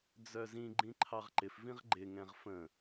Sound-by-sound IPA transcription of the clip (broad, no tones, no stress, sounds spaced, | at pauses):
d͡z œ z ĩ ɡ͡ǃ ĩ ǃʰ ɑ ʁ ǃ ɪ f v ĩ ʁ ɡ͡ǃ ɪ ŋ ɛ̃ ʁ f ə̃